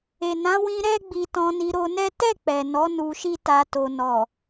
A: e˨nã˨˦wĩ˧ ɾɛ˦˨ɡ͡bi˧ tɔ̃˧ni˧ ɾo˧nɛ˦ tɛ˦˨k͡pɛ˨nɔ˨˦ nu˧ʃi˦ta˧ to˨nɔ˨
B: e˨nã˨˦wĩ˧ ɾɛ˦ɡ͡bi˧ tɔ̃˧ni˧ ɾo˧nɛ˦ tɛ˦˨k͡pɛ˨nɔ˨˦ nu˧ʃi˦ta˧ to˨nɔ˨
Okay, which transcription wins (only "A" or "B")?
B